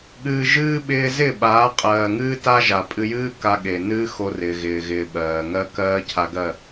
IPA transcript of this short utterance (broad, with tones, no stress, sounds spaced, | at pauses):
ɠ ɨː˨ ʒ ɨː˧ ɓ ɪː˧ z ɪ˦˨ ɓ aː˨˦ qʼ ɜː˨ ŋ ɨː˦ t a˦ ʒ a˨ pʼ ɨ˧ j ɨː˦ k a˧ ɠ e˨ n ɨː˦ x o˧ r ɪː˨ ɣ ɪː˨ ɣ ɪː˨ ɓ ɜː˨ ŋ ɜ˦ k ɜː˦ cʰ a˧ ɡ ɜ˦˨